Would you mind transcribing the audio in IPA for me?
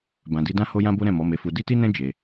b ã˨ d i˧ d ã˦ h o˦ j ã˦ b o˦ ɾ ɛ̃˦˨ m ɔ˨˦ m e˧ f u˧ d i˦ t i˦ n ɛ̃˦ d͡ʒ e˧

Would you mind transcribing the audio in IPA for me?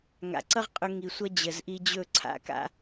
ŋ a̰˨ ǀ ʌ˦ ʁ qʼ ɵ˧ ŋ i˧ sʷ ʌ˦ d͡ʑ ə˨ z ʔ i˧ d͡ʑ ɵ˦˨ ǀʰ a̰˦ k a̰˦

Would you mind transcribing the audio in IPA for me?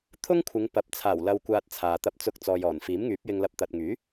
t̪ʰ ʊ˥ ŋ kʷʰ ɪ˨˧ ŋ p ɐ˨ p̚ t͡sʰ aː˨˩ w l ɐ˨ w kʷ aː˨ t̚ t͡sʰ aː˨ t̪ ɐ˧ p̚ t͡s ʊ˧ k̚ t͡s ɔː˨ j ɔː˨˩ n f iː˨˥ m ŋ yː˨˥ p̚ j ɪ˧ ŋ l ɐ˧ p̚ t̪ ɐ˨ t̚ ŋ yː˨˥

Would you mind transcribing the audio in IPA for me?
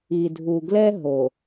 i˨ dʱ u˨ ɡ l ɛ˦ ɦ o˨

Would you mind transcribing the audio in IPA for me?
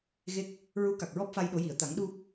ɣ e˦˥ k̚ | ɹ u˧˥ k a˨˩ k̚ ɹ ɔ˦˥ p̚ f a˧ j ɗ o˨˩˦ j i˨˩˨ ə̯ t̪ a˨˩˦ ŋ ɗ u˧

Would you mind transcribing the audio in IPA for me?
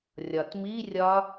rʲ ɒ t m i rʲ ɒ

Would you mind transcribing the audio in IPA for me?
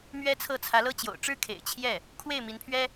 m ɥ ɛ˥ t͡sʰ ɤ˥˩ t͡sʰ ä˧˥ l ɤ˥ t͡ɕ j o̰˨˩ ʊ̯ ʈ͡ʂ ɻ̩˥ kʰ ḛ˨˩ ɪ̯ t͡ɕʰ j ɛ˥˩ | kʰ w e˥˩ ɪ̯ m i˧˥ n pʰ ɥ ɛ˥

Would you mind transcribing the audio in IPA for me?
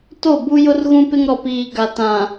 t o˦˨ b u˦ j ʊ˦ r ɣ ũ˦ p ɪ˦ ŋ ɾ ɔ˨ p iː˨ ɡ a˨ t ã˨

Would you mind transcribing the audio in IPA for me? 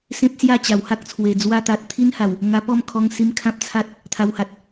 s ẽ˦ p̚ s j a˥˧ t͡ɕ a˨˩ w h a˦ k̚ t͡sʰ w e˨˩ d͡z w a˧ t̪ a˨ t̚ t̪ʰ i˦ n h a˨˩ w | ŋ a˧ p ɔ˥˧ m kʰ ɔ˧ ŋ s i˧ m kʰ ã˦ p̚ t͡sʰ a˦ t̚ | t̪ʰ a˧ w h a˨ t̚

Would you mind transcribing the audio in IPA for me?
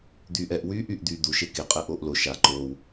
d̪ yː ʔ ɛ ʔ w yː ʔ y ʔ d̪ yː d̪ u ʃ e k e qʼ ɛ ʔ oː ʔ l o ʃ a ǃ oː w

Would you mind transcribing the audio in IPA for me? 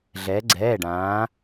ɮ ɛː˩˧ ɡ͡ǀ ɛː˩˧˩ ɖ ãː˩˧

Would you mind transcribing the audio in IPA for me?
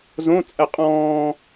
z õ t͡sʼ ɜ qʼ ɔ̃ː

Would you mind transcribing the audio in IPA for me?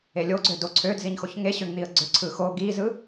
e lʲ o ɡ͡ǀ ø d o ǀʰ ø d z i ɲ x o ç ŋ e ɕ ø ŋ n̪ i ə̯ ɡ͡ǀ ø ǀʰ ɯ x o ɡ i z ɯ

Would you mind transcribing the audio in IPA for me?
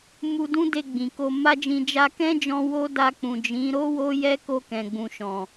m u˧ d ũ˦ d e˧ ɡ͡b ĩ˨ k o˧ m a˦ d͡ʒ ĩ˧ d͡ʒ a˧ k ɛ̃˦ d͡ʒ ɔ̃˧ w o˦ d a˧ k͡p ũ˨ d͡ʒ ĩ˨˦ ɾ o˦ w o˦ j ɛ˦ k o˧ k ɛ̃˨ ɡ͡b ũ˨ ʃ ɔ̃˨

